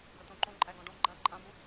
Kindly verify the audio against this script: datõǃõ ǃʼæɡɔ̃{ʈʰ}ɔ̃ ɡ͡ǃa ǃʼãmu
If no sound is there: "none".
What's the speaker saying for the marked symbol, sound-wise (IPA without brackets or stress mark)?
ɖ